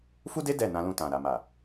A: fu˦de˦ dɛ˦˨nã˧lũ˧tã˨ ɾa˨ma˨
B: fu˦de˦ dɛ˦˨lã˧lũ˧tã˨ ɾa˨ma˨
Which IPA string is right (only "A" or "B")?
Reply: A